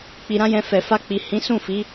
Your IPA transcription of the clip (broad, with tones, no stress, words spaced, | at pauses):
k͡pi˧ɾã˦jɛ̃˧ fɛ˨fa˧k͡pi˨ hĩ˨˦sũ˦˨fi˨˦